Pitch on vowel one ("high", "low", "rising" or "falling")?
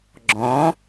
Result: rising